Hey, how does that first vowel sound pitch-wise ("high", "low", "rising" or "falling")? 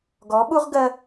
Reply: rising